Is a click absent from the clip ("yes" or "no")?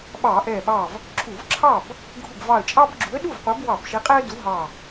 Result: no